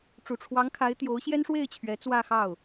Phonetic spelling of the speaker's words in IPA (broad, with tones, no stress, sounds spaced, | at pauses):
ʈ͡ʂ u˨˩ ʈ͡ʂʰ w ɑ˧˥ ŋ kʰ a˧˥ ɪ̯ t̪ j o˧˥ ʊ̯ ɕ j ɛ˥ n ʂ w e˥˩ ɪ̯ t͡ɕʰ ɥ ɛ˧˥ t͡s w ä˥˧ x ɑ˥˩ ʊ̯